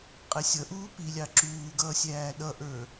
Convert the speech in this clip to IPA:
qʼɛsʲʌʔuː pilʲɑ ǁuːɡʌː sʲæːɗʌʔə˞

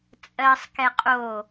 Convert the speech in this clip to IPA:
t͡sʼɜsˤkɛ qʼo

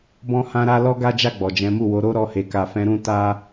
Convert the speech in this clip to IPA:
bɔ̃˦hã˦ɾa˦ lɔ˦ɡa˦d͡ʒa˦˨ ɡ͡bɔ˨d͡ʒɛ̃˨˦mu˦˨wo˨˦ ɾo˦ ɾɔ˧he˨ka˨fɛ̃˨˦ ɾũ˦ ta˦

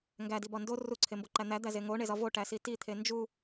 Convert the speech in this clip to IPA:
ŋɡædibɒ ndo ruǀʰemboǃæ n̪æd̪æze ŋoɳezɒ voʈæsi tit̪ʰe nd͡ʒu

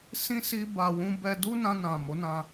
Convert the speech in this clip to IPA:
sĩ˦ si˦ba˧wũ˦ bɛ˧du˦ nã˧nã˨ mo˨˦nã˧

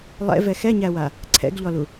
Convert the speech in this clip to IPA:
lˠɛ̰vɛ xɛɲæwa | ǀʰɛ̰ɡʎɔlu

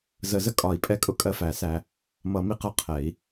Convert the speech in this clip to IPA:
zə˨˩˦zə˧ kʼɒ˨˩˦i̯pʼɛ˧kʼʊ˧ kʼɜ˧fæ˨˩˦sæ˧ | mʌ˨˩˦mi˧ qʌ˧qʰɛ˨˩˦i̯

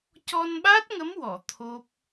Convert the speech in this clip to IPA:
cɔ˧nɓa˦˥t̚ŋə˧˥mwɔ˨˩˨ t̪ʰo˦˥p̚

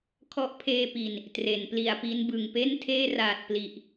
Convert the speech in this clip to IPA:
kʰɔ˦˥ʔpʰeː˧pi˨˩n | tre˩˦npli˨˩a̯pi˦˥n bɯ˨˩ŋpe˥˩ntʰeː˥˩ raː˨˩t̚pli˨˩ʔ

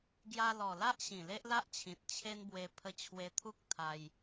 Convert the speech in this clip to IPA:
ɡja˧lɔ˨˩la˦ʔ ɕĩ˨˩le˦ʔla˦ʔt͡ɕʰĩ˨t̚ t͡ɕʰe˦nbwe˧ pʰə˧t͡ɕʰwe˧t̪ʰu˦k̚ t̪ʰa˧j

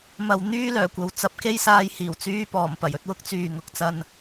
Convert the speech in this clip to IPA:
mɐ˨w n̪yː˥lœː˨˩kʷɐ˨w t͡sɐ˧p̚ke˥jsaː˧jhiː˨˩w t͡syː˧pɔː˨˩m pɐ˨˩jɵ˧t̚ wʊ˥k̚t͡syː˨ ŋʊ˨˥k̚t͡sɐ˧n

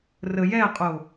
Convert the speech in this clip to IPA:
rəjɛqʼo

